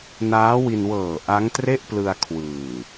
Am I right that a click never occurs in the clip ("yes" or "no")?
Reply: yes